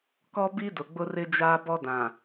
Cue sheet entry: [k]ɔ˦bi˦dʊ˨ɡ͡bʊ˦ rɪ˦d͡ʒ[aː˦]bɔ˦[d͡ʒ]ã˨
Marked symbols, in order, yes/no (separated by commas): yes, yes, no